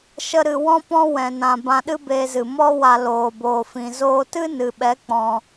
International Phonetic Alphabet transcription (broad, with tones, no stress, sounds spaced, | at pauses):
ʃ ə˦ ɾ ɨ˧ w ɔ̃˦ p ɔ̃˦ w ɛ̃˨ n ã˨ b ã˧ ɗ ɨ˦ b eː˧ z ɨ˨ m ɔ˦ w a˧ l oː˨ b oː˨ f ĩ˨ z oː˧ t ɨ˦ n ɨ˨ ɓ ɛ˨˦ k͡p ɔ̃˨